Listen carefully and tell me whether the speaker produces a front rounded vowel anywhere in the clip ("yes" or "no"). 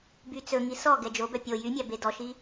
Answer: yes